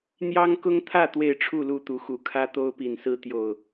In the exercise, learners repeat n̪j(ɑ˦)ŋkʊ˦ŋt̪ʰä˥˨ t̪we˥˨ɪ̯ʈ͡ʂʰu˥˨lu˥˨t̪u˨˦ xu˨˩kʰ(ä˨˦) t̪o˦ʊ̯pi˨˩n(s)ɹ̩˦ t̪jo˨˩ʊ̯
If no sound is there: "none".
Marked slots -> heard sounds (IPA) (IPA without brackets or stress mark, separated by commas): ɑ˦, ä˦, s